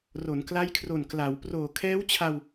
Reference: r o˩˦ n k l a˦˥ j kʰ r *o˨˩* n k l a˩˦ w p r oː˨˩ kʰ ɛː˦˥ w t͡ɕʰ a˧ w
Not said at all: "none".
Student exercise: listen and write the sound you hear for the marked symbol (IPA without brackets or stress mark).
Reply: o˨˩